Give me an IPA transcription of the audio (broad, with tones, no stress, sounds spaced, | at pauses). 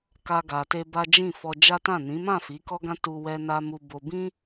k a˦ ɡ a˧ t e˦ b a˦ d͡ʒ ĩ˦˨ f ɔ˧ d͡ʒ a˦ t ã˦˨ n ĩ˨˦ m ã˦˨ f i˨˦ k ɔ˦ ɡ ã˦ t u˧ w ɛ˦ n a˦ m u˦ b o˦ b ĩ˦